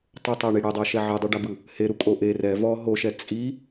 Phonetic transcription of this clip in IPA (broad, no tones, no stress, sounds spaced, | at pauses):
tˤ ɤ tˤ o ɳ i ɽ e dˤ ɤ ʃ ɛ ʕ e dˤ ɯ ɖ a b ɯ | h e ɾ u kʼ o ʔ e r ɛ v ɔ ɦ o ʃ ɛ t͡sʼ i